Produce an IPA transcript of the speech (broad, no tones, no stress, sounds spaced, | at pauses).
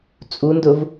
t͡sʼ u n d ʊ v